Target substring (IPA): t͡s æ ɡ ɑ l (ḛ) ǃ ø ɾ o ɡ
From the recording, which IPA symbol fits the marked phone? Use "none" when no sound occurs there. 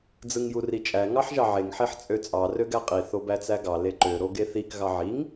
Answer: e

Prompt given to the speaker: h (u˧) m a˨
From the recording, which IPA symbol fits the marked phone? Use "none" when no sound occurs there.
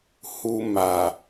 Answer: u˧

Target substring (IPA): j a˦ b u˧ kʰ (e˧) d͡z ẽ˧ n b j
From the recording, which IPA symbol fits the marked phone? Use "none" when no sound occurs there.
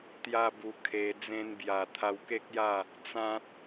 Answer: e˧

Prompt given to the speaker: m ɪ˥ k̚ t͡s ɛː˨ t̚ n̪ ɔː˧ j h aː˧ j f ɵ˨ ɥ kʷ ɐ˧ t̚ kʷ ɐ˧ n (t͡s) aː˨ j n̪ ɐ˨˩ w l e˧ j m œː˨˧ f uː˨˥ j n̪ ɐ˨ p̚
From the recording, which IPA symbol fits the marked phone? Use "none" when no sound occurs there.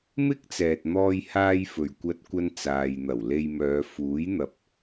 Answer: t͡s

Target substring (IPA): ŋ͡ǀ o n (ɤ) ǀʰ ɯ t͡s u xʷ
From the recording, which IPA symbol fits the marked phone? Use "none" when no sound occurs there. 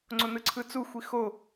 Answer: ɯ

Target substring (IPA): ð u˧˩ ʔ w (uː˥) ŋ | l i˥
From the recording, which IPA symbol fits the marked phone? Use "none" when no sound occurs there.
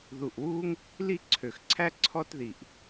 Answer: uː˥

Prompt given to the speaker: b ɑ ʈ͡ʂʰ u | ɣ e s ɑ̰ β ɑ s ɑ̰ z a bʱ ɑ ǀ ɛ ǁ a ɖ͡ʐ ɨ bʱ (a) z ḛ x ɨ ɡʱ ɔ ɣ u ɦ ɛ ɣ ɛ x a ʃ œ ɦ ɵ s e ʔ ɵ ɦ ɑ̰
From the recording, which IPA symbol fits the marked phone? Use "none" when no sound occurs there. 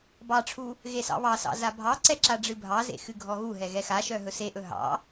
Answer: ɑ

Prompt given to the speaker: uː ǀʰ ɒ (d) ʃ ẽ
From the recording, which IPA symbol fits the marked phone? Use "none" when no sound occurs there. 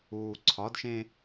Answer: d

